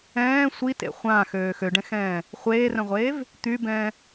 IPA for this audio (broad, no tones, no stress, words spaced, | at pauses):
ɛ̃ː sʷitḛ χʷãːxøː xøɖɛ̃xɛ̃ː | χʷeːrœ̃ʁʷeːv | t̪ybɛ̃ː